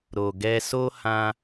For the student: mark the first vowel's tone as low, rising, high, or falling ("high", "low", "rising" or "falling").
low